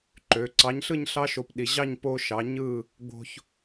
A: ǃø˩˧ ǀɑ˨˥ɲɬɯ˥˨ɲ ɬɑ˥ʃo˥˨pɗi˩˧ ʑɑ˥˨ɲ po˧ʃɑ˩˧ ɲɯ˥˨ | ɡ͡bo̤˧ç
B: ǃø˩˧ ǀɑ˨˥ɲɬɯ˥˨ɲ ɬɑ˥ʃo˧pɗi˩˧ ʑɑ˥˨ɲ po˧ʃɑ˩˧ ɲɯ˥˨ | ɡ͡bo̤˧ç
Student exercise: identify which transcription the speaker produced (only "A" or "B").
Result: B